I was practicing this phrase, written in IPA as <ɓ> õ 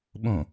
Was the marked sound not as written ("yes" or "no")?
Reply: no